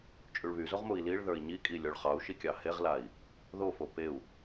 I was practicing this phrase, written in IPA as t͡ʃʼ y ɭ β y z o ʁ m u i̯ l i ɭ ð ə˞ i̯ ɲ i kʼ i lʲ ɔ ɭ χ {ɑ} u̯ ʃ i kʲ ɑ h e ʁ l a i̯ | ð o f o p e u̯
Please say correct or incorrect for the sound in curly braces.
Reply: correct